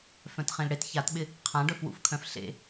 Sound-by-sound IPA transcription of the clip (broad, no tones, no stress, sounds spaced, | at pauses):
f œ̃ t χ ẽ l ɽ e t ç a t ɓ ɪ | qʰ ã ɖ œ f w ṵ f kʰ œ̃ f ɬ ḛ